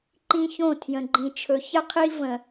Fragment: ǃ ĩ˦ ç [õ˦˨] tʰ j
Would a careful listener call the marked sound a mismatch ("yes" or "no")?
no